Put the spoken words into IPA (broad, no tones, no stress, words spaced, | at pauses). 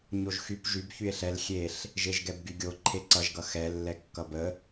ɲoʒxyp ʒyb çye̯ɬɛl xʲeɬ | ʒeʒɡɛbɡyɡʲo ǃʰeǀʌʒɡʌ xɛ lːɛkːʌbə